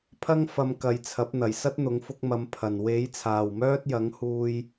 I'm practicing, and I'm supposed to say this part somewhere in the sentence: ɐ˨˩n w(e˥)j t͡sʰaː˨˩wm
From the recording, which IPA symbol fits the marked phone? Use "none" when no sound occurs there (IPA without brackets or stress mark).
e˨˥